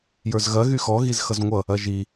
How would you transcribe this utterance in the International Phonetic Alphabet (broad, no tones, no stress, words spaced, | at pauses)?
jə˞zɣɐ ɣyxɔ ɣizxʌzŋʷʌ | ɐʒi